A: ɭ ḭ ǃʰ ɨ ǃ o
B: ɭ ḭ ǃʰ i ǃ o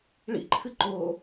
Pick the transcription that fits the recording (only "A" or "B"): A